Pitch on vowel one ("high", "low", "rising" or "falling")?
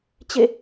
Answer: falling